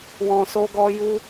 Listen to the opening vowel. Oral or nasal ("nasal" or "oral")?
nasal